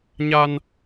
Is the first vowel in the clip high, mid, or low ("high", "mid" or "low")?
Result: low